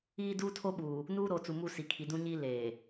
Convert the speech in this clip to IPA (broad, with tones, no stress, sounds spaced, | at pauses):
iː˦ d uː˦ tʰ o˦ ɓ uː˨ | n uː˦ ɾ oː˨ t͡s u˨ m u˦˨ s i˨ kʰ i˨ d ũ˦ ɲ i˦ l eː˨